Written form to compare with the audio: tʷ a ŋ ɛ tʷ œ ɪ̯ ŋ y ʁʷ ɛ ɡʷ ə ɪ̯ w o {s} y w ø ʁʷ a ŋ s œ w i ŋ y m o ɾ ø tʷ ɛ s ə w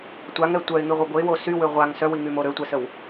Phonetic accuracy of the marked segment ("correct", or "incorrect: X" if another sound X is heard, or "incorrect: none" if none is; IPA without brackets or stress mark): correct